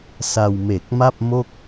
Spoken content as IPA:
s a˧ w m e˨˩ k̚ m a˥˩ p̚ m o˥˩ k̚

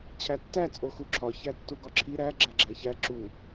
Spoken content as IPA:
t͡ɕʰ æ tː æ t͡sʼ o x u ǁʰ ɒ ç æ tː u ɡ ɒ ǁʰ i ɾ æ ɡ͡ǁ æ ɡ͡ǁ æ ç æ ǁ u

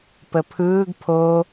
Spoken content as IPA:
p ə pʰ ɯː ɡ pʰ o

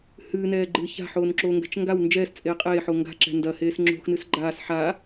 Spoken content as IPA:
h ɨː n ɛː ɡ͡ǃ ɨː ç a̤ ħ oː n ǁ oː ŋ ɡ ɛ̤ t͡ʃ ŋ ɡ a w n d͡ʒ ɛː s t͡sʼ eː qʼ eː ħ o ŋ ɡ a̤ ǁ ɛ̤ n d ɐ h eː s ŋ͡ǁ o̤ x n ɨ s ɡ͡ǃ aː s ħ a

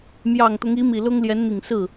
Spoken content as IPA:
m j ɑ˨˩ ŋ t̪ ʊ˧˥ ŋ i˧˥ m i˨˩ l ʊ˥ ŋ l j ɛ˧˥ n n̪ i˨˩ ŋ s ɹ̩˥˩

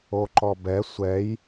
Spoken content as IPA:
o ǃ ɔ b ɛ sʷ ɛ j

